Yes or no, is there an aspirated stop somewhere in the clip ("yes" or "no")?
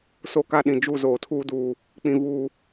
yes